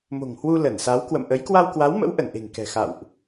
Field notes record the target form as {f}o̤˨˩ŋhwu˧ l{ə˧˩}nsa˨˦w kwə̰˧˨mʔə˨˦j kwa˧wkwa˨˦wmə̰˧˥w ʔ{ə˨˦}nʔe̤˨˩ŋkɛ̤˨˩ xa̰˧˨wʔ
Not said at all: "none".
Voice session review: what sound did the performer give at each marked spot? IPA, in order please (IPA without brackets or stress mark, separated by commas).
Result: m, ə˧˩, ə˧˩